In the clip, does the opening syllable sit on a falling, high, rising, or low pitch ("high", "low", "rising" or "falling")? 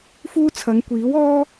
high